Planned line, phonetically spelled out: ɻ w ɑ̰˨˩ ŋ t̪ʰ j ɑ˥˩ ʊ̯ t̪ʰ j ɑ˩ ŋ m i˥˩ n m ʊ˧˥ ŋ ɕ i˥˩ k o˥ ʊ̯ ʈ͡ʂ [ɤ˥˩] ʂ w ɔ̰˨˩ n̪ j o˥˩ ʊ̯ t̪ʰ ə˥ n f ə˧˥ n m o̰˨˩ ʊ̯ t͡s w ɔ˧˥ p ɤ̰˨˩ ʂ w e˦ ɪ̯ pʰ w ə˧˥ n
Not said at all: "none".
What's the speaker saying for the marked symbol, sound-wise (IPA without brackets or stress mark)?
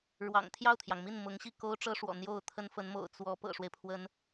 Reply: ɤ˥